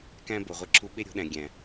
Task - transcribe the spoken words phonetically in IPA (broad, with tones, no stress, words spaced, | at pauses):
kæ̃˦ bo˨ʁʷi˧ǁʰu˦ ɓe˦ɾʲo̤˨˦ɗæ̃˨ ɡʲæ̃˨